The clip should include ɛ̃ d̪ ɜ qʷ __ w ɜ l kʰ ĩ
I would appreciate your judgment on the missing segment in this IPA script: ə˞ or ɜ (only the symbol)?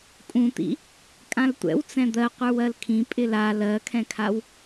ə˞